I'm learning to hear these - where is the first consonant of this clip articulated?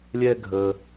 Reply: tongue tip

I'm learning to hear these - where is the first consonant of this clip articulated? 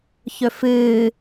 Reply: palate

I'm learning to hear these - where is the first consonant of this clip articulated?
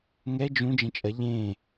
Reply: velum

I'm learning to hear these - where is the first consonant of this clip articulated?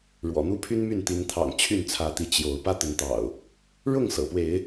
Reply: retroflex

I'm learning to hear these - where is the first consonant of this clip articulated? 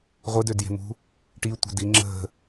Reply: uvula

